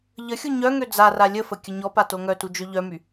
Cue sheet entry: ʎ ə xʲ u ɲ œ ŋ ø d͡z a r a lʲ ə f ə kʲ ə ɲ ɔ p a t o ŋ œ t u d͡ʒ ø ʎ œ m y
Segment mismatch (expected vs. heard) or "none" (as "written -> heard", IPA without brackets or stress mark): none